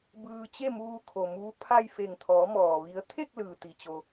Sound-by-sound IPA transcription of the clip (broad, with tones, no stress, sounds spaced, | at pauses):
b ɯː˧ t͡ɕ e˥˨ m uː˧ kʰ o˩ m uː˧˥ pʰ a˥˨ j f e˧˩ ŋ t̪ʰ ɔː˩˧ m ɔː˩ ʋ i˩˧ ə̯ t̪ʰ e˥˨ k̚ l ɯː˩ t̪ i˩ t͡ɕ o˩